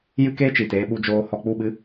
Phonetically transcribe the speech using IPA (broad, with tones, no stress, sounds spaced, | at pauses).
j ɨ˦ k eː˦ t͡ʃ iː˨ t eː˧ ɓ u˧ d͡ʒ oː˧ h ɔ˧ k͡p u˦˨ ɓ ɨ˦